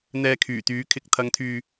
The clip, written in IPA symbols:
n̪ ɛː˧ kʰ yː˨˩ t̪ yː˨˥ kʰ ɪ˨ k̚ t̪ʰ ɐ˨˧ ŋ t̪ʰ yː˨

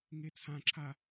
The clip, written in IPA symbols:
ŋ e t͡sʰ ã ǁʰ a

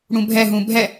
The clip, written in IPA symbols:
ɽ ũ bʱ ɛ ɦ ũ bʱ ɛ

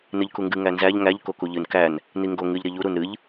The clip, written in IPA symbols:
n ɨ ʎ k u ŋ ɡ ɨ ŋ æ n z æ ʎ ŋ æ ʎ k o k u ʎ ɨ n k æ n | n i ŋ ɡ o ŋ ɨ ʎ ɾ i ʎ u ɾ u n ɾ ɨ ʎ

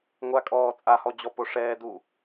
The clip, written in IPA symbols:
ŋʷ a kʼ ɔː t͡sʼ a h ɔ d͡ʑ ɔ p o ʂ ɛː d u

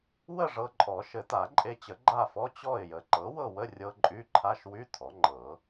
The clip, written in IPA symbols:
w ə˥˨ ʐ ɤ˧ ǃʼ ɔ˨˩˦ ʃ ɘ˨˩˦ t a˨˩˦ ǃʼ e˧ t͡ɕ ə˨˩˦ ɡ͡ǃ a˥˨ f ɔ˧˥˧ t͡ɕ ɔ˥˨ ɪ̯ j ə˩˥ ǃ ɤ˩˥ w ɤ˥˨ w ə˧˥˧ rʲ ɤ˧ ǃʼ y˧˥˧ ǃʰ a˧˥˧ ʃ w y˧˥˧ tʰ ɔ˩˥ ŋ͡ǃ ɤ˨˩˦

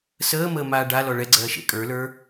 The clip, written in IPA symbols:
s əː m əː m aː ɖ a l ɔ ɭ ɛ ɡ͡ǀ ɜː ʃ ḛ kʼ ə˞ l ə˞

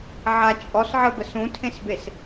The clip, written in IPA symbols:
ʕ a t͡ʃʼ ɔ s ʕ ə b ə s ũ tʰ ẽ s b e s

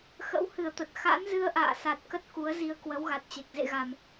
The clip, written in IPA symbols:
x ə̰˧˥ w h ɨ˧˩ ə̯ t̪ ə˨˩ t̚ x a̰˧˥ n z ɨ˧ ə̯ ʔ a̰ː˧˨ s a˨˩ t̚ k ə˦˥ t̚ k u˨˦ ə̯ z i˧ ə̯ k w ə˨˦ w ɣ a˨˩ t̚ t͡ɕ e˨˩ k̚ z ḛ˧˨ ɣ a˨˩ m

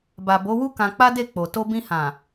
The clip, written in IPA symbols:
b a˨ b o˨˦ w u˦ k ã˧ k͡p a˦ d e˦˨ k͡p o˨ t o˧ b ĩ˧ h ã˨

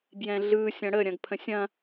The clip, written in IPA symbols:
b j ɛ̃ ɮ ɯ sʲ ɐ̃ ɽ ə ɾʲ ɐ̃ ɡ pʰ ə̃ sʲ ɐ̃

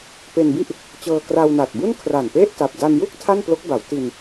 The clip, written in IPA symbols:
p e˧ n b i˥˩ ʔ | t͡ɕ ɤː˧ k r a˧ w n a˨˩ t̚ b u˥˩ n kʰ r a˨˩ n p e˥˩ ʔ t a˨˩ p̚ d a˧ n j u˥˩ k̚ tʰ a˥˩ n p l o˦˥ k̚ b a˩˦ w t i˧ n

